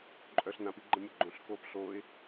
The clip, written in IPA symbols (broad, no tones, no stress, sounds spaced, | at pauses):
ǃʼ œ ɬ n ã p i ɡ͡ǃ ə̃ mʲ ə ɡ͡ǃ õ ɬ k oː p ɬ oː ɪ̯